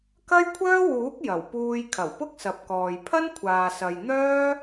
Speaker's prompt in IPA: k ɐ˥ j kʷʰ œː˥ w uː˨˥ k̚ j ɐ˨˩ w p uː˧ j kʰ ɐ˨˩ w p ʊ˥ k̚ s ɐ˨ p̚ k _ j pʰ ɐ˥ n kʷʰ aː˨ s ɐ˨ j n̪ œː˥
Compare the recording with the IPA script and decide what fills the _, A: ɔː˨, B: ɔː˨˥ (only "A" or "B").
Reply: A